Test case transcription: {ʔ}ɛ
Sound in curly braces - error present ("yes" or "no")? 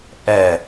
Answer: no